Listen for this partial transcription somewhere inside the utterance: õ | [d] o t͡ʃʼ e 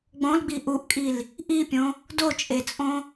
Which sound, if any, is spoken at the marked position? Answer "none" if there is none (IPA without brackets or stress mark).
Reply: d